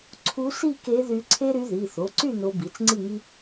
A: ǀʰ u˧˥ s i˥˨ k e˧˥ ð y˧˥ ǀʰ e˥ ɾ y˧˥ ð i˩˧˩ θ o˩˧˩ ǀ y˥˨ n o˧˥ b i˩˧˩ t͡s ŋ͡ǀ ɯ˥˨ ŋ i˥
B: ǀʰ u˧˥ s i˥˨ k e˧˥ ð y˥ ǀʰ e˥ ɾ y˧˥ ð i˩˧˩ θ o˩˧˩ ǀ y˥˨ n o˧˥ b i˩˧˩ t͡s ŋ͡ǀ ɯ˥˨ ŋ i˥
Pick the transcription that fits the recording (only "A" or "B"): A